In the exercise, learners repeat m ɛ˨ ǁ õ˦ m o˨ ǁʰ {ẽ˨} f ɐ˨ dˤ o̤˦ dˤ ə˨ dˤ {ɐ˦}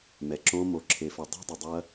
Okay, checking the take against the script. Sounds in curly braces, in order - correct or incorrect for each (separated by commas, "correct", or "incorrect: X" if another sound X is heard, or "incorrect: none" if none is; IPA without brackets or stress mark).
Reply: incorrect: e˨, correct